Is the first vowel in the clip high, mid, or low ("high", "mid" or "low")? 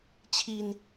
high